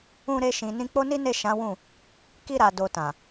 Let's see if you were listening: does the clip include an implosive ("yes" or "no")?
no